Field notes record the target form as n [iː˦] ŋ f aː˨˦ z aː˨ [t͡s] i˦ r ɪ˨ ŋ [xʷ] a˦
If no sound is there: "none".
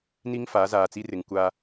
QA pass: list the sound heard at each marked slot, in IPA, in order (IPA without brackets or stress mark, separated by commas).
i˦, t͡s, kʷ